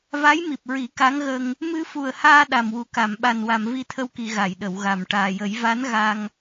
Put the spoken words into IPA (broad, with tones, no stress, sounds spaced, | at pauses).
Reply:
v a˧˥ j m i˨˩ p̚ ɹ i˨˩˦ k a˧˥ ŋ ɣ ə˧ ŋ | m ɨ˧ f u˨˩ ə̯ h aː˧ ɗ a˨˩ m w u˨˩ k a˨˩˨ m ɓ a˨˩ n w a˨˩˨ m v i˧ t̪ʰ ə˧ w k i˨˩˨ ɣ a˨˩˨ j ɗ ə˨˩˨ w ɣ a˨˩ m ʈ aː˨˩ j ə˨˩˦ j v a˧˥ n ɣ a˧ ŋ